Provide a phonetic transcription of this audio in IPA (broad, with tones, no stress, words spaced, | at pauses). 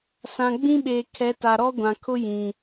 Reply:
sã˨ɡ͡bĩ˦ɓeː˨kʰɛ˨˦ ta˨ ɾɔ˦ɡʷã˨kʰʊ˦ jĩ˨